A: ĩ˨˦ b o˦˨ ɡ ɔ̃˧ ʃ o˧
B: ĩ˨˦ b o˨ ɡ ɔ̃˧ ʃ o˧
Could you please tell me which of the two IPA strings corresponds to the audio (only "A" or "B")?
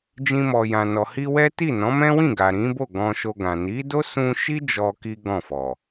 A